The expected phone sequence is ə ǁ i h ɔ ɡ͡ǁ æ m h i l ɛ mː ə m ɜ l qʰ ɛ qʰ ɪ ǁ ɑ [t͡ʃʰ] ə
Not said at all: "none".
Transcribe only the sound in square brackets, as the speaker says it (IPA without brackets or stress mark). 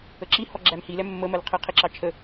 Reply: t͡ʃʰ